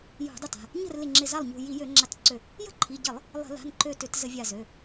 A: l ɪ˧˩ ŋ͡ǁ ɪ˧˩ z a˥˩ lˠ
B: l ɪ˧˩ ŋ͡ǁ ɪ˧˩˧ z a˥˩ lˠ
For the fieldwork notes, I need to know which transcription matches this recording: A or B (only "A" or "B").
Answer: A